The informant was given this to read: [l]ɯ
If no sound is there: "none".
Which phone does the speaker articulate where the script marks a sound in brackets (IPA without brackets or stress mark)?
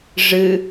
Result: ʐ